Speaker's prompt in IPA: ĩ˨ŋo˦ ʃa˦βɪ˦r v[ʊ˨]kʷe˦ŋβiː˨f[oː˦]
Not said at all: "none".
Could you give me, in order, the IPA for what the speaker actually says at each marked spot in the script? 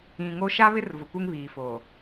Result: ʊ˨, oː˨

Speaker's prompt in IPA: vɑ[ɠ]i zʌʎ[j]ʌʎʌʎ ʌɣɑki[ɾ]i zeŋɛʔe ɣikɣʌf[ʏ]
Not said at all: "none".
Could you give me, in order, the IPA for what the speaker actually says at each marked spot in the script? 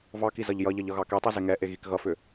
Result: k, j, tˤ, ʏ

